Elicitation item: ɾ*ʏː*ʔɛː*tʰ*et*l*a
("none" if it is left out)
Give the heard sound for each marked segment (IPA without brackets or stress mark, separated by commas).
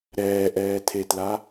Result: ɛː, tʰ, l